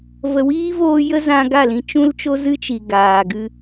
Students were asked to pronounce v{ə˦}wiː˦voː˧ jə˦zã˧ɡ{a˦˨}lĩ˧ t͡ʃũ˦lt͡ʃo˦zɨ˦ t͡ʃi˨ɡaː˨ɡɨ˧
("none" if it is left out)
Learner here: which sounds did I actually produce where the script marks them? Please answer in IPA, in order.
ə˨, a˦˨

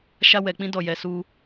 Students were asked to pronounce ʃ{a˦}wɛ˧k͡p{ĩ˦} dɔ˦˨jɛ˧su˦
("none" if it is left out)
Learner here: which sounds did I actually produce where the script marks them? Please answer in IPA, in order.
a˦, ĩ˦

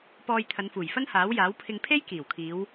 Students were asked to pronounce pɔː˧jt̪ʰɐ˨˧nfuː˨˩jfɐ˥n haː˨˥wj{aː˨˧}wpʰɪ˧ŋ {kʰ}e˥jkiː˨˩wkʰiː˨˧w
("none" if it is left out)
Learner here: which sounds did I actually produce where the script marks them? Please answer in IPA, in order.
aː˨˥, pʰ

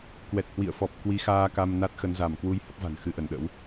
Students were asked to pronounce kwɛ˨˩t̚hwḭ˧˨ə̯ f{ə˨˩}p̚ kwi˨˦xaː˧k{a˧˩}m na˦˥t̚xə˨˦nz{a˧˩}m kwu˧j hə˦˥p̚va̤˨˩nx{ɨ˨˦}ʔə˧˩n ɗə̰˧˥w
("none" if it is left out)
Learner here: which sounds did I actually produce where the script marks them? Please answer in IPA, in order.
ɔ˨˩, a˧, a˧˩, ɨ˧

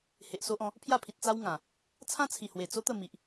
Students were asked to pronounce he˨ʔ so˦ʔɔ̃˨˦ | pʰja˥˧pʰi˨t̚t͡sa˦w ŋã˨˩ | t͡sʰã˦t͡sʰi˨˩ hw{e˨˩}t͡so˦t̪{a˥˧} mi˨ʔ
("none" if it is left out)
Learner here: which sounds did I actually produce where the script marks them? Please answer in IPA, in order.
e˨˩, ə˥˧

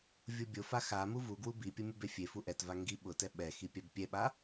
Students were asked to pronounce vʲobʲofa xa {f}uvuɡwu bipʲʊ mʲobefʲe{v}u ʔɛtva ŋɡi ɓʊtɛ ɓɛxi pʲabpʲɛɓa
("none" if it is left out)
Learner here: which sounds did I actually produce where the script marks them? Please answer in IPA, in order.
m, f

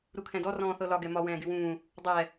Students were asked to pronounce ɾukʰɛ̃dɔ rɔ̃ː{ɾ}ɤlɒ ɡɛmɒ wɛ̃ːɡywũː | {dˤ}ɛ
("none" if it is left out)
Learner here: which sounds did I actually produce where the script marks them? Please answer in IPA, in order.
θ, dˤ

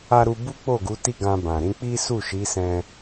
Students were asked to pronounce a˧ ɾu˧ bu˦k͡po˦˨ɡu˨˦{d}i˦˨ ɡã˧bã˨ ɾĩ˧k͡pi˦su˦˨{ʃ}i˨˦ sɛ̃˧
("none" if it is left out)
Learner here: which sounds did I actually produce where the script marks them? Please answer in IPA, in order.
t, ʃ

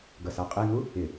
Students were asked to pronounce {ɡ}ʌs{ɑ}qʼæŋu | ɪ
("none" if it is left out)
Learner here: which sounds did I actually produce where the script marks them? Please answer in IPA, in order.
ɡ, ɑ

